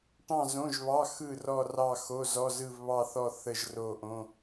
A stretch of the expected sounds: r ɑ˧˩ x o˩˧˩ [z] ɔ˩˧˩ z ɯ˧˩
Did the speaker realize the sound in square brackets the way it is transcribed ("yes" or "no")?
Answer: yes